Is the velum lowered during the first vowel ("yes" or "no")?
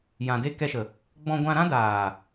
yes